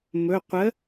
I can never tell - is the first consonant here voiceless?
no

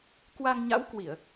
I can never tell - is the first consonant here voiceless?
yes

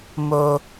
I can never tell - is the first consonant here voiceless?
no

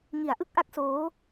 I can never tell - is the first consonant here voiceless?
no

